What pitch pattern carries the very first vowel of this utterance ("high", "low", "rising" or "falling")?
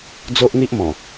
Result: high